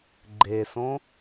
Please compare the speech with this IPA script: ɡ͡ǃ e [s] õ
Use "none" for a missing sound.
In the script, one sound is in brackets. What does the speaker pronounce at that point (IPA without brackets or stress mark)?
s